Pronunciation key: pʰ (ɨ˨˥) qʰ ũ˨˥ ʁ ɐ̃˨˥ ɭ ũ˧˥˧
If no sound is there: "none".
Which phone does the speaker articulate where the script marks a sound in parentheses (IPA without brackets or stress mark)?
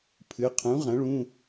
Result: ɨ˨˥